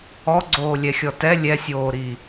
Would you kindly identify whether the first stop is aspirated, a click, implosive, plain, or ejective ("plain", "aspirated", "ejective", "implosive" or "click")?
click